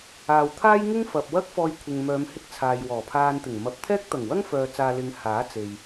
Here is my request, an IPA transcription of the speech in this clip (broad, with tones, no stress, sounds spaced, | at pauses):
aː˨ w t̪ʰ aː˥ j ŋ ɪ˥ ŋ f ɐ˨ p̚ w ɐ˥ k̚ f ɔː˧ j kʷʰ ɪ˨ ŋ m œː˨˧ m h ɪ˥ k̚ t͡sʰ aː˨ j w ɔː˨˩ pʰ aː˧ n t̪ ɪ˨˩ ŋ m ɐ˨˥ p̚ t̪ʰ ɛː˥ k̚ t̪ ɐ˨˩ ŋ w ɐ˥ ŋ f œː˨ t͡s aː˨ l ɪ˨˧ ŋ h aː˨˥ t͡s e˨ j